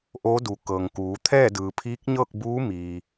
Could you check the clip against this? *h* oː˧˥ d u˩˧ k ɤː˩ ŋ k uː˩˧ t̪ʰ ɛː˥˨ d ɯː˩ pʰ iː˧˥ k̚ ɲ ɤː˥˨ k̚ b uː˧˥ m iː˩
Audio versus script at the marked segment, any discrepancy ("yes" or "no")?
yes